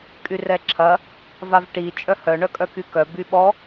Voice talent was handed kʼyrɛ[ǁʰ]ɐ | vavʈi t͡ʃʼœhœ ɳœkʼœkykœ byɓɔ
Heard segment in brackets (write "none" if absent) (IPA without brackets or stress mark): ǁʰ